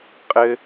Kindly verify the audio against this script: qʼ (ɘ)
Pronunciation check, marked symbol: correct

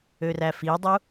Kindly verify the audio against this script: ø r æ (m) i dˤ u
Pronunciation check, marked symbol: incorrect: f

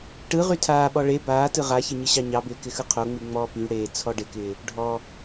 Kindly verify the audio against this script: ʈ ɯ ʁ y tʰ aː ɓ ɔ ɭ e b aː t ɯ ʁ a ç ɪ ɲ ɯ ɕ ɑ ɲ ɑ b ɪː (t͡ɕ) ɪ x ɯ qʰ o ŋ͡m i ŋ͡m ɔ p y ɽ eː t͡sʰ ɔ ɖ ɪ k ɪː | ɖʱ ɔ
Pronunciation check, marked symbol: incorrect: k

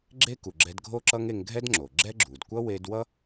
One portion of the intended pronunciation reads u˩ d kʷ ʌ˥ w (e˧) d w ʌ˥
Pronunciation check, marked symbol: correct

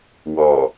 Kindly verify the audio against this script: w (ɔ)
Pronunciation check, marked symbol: correct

